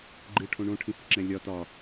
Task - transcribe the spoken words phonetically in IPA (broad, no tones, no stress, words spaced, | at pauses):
ɡ͡ǃɨʈʰõ ɳõʈʰĩhɯ ǁɛ̃lʲɒ tɒ